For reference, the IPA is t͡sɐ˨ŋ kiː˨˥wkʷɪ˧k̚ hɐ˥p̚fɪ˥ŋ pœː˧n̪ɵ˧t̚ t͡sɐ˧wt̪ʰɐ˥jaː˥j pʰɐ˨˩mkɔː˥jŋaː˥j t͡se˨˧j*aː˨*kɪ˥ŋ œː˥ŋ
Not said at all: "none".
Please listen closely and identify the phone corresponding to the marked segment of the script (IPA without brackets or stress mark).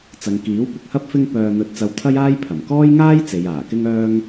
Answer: aː˨˩